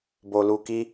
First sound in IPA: b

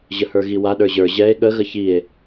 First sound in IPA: ʑ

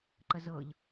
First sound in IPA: ǃ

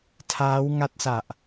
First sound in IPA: tʰ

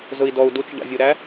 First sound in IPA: z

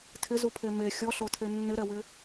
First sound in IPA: tʰ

